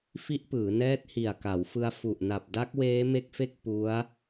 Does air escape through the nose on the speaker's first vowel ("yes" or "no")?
no